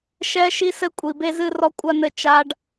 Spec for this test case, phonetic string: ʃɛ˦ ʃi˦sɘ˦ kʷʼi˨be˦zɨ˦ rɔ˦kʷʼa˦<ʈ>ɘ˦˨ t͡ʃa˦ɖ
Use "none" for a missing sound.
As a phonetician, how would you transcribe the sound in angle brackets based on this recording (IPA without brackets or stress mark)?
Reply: n